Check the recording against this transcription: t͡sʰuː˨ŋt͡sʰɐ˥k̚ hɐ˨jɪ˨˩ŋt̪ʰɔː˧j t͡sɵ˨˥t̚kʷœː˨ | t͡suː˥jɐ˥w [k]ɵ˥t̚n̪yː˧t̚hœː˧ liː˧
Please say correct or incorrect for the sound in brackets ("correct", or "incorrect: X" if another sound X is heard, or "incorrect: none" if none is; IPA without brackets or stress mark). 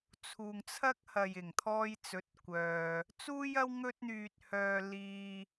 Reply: incorrect: ŋ